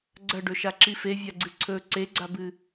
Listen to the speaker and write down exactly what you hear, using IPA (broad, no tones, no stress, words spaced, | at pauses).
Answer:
ɡ͡ǀɐɖɵʃa ǁifevʲaɡ͡ǀɨ ǀʰɵ ǀeɡ͡ǀabɨ